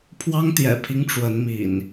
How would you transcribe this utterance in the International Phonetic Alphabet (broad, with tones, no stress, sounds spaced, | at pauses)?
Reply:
pʰ w ɑ˦ ŋ t̪ j ɛ̰˨˩ pʰ i˦ ŋ ʈ͡ʂ w ə˨˦ n m ḭ˨˩ n